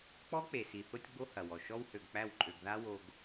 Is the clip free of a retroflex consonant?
yes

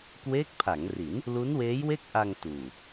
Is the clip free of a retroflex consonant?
yes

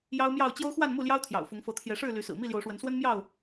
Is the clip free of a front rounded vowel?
no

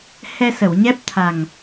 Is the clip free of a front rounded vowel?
yes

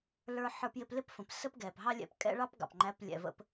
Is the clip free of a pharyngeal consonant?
no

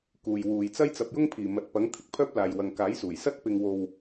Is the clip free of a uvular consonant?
yes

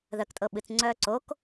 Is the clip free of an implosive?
no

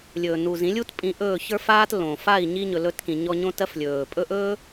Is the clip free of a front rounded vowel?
yes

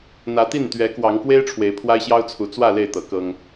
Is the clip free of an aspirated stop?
no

